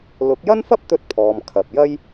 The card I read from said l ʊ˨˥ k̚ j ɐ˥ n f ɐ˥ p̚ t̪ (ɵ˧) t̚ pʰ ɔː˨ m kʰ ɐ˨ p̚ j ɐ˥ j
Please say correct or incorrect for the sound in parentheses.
correct